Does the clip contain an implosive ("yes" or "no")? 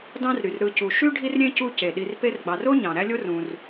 yes